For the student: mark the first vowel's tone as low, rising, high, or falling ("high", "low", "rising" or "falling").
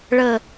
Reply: low